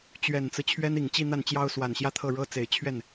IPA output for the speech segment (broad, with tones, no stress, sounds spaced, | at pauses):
t͡ɕ ɥ ɛ˨˩ n t͡s ɹ̩˦ t͡ɕʰ ɥ ɛ˥ n i˨˩ ŋ t͡ɕ i˥˧ n̪ a˥˩ n t͡ɕ j ɑ˥ ʊ̯ s w a˨˩ n ɕ j ä˥˧ t̪ʰ ɤ˥˩ ɻ ɤ˥ t͡s e˨˩ ɪ̯ t͡ɕʰ ɥ ɛ˥˩ n